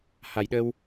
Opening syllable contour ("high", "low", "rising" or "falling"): low